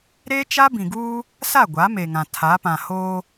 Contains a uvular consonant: no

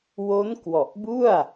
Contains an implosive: no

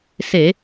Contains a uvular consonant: no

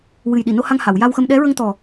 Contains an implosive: yes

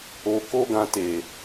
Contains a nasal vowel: yes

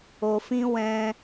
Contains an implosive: no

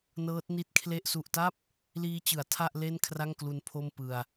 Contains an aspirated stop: yes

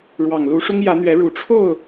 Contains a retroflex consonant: yes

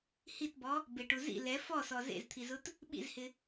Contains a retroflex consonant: yes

